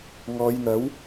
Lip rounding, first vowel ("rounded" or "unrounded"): rounded